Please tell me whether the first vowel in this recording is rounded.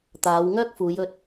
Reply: no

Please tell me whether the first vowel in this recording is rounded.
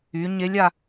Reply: yes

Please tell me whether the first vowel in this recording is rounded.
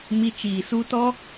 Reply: no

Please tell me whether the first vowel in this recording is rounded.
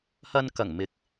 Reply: no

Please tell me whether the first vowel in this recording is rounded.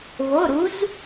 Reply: yes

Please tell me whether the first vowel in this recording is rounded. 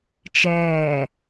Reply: no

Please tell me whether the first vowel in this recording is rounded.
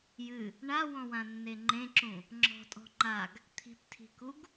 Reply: no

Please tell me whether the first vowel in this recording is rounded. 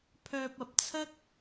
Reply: yes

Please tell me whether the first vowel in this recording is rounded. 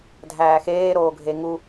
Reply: no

